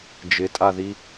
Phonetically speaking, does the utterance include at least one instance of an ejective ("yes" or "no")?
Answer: yes